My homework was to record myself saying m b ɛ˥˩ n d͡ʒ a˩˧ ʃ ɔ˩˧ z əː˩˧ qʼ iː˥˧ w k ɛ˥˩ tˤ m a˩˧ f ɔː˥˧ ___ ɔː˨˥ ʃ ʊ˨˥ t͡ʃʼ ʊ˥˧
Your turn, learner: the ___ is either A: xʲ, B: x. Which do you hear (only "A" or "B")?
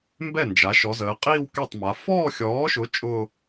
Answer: A